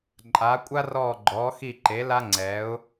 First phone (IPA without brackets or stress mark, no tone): ǃʼ